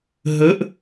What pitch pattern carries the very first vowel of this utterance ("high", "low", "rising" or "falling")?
rising